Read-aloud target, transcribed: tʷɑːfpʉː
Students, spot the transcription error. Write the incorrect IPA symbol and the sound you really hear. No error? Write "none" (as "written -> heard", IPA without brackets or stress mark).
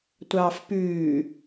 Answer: none